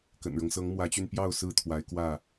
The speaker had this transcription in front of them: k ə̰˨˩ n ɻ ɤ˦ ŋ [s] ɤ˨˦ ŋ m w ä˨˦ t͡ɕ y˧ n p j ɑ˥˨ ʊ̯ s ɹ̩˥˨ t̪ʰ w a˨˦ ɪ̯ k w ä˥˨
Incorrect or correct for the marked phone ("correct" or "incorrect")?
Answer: correct